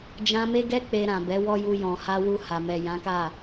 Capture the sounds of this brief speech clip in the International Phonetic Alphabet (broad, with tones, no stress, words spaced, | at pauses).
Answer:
d͡ʒã˧me˦ɡɛ˦ k͡pe˧ɾã˨ bɛ˨˦wɔ˦ju˧ jɔ̃˨ha˧ wu˧ha˨ mɛ˨jã˨˦ka˦˨